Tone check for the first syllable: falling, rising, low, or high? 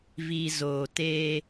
low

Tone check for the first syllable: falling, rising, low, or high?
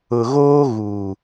low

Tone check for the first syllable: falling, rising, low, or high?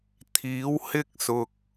rising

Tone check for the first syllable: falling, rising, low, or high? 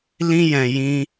high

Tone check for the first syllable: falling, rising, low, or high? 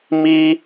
high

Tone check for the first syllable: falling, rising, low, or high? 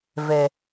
low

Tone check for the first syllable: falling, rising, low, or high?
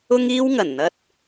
high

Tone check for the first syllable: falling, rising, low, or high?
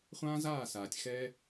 high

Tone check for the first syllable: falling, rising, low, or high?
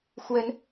rising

